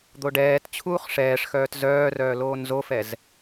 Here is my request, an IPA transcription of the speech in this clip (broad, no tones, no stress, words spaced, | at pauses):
d̪oɖɛːt t͡ɕʰuːχʂɛːʂxœːt zœːrœː loːnzofɛz